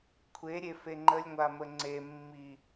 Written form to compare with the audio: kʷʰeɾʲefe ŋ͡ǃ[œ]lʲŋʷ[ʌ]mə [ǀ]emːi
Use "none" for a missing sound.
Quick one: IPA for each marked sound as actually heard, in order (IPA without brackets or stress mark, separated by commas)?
ə, a, ŋ͡ǀ